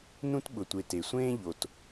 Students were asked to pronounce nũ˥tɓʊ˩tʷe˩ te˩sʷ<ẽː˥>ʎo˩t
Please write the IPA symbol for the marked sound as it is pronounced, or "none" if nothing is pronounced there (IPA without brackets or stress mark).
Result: ẽː˥